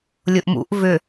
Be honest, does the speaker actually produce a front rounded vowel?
yes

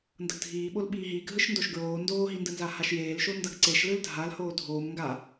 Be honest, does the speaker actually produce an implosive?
yes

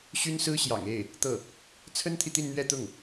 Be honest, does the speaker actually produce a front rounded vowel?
yes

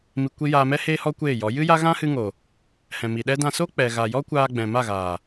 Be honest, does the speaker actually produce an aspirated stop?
no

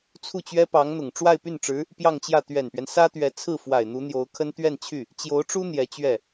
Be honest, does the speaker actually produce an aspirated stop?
yes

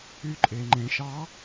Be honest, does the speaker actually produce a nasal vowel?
yes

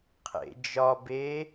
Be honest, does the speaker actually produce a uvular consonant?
yes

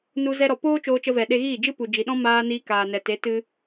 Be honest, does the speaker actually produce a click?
no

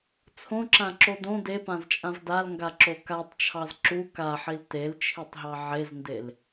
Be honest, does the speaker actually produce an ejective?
yes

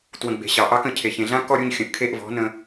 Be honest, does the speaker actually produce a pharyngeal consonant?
no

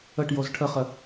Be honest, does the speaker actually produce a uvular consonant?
yes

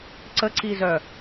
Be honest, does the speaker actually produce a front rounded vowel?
yes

